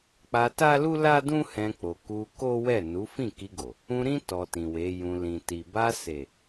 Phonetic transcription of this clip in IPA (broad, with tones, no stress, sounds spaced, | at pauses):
k͡p a˧ t a˦ l u˦ l a˦ d ũ˦ h ɛ̃˧ k͡p o˨ k u˧ k o˦ w ɛ˦˨ n u˨˦ f ĩ˦˨ k i˧ ɡ o˨ | ũ˧ ɾ ĩ˦ t ɔ˧ t ĩ˨ w e˨˦ j ũ˧ l ĩ˨ t i˨ b a˧ s e˨